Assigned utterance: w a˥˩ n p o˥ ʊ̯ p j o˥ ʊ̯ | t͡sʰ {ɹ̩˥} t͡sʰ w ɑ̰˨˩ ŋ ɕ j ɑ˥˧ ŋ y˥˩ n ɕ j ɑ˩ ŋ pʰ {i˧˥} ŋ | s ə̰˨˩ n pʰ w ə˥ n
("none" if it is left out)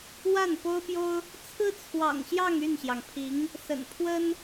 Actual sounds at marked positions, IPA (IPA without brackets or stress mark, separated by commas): ɹ̩˥, i˧˥